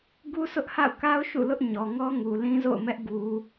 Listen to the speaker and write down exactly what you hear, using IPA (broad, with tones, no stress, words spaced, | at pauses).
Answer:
ɡu˦sʊ˦ʔha̰˦˨ʊ̯ka˦ʊ̯ ʃṵ˦˨lʊ˦ʔ ɲɔ˨ ŋɔ˦ŋu˨ lĩ˦zo̰˦˨ʊ̯mɛ˦ʔ ɡu˨